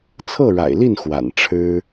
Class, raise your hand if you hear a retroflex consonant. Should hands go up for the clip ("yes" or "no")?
yes